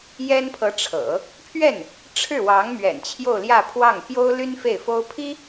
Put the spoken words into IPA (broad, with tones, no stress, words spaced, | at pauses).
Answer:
jɛ˥npʰɤ˧˥ʈ͡ʂʰɤ̰˨˩˦ | pʰɥɛ˥˩n | ʈ͡ʂʰɻ̩˥˩wɑ˧˥ŋmɥɛ̰˨˩n t͡ɕʰjo˥˧ʊ̯ljä˥˧pʰwɑ˥˩ŋ pjo˥ʊ̯ly˥n fe˥˩ɪ̯fo˥ʊ̯ pʰi˥